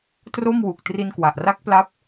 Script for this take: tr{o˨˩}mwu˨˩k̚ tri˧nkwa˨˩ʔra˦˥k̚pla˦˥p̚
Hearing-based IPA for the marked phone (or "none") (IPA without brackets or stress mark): o˥˩